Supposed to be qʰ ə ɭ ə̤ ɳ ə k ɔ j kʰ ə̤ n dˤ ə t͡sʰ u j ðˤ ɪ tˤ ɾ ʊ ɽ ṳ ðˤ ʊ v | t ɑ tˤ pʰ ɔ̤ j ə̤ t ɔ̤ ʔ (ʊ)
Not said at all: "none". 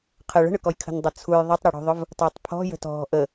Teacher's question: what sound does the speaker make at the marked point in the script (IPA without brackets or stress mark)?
ə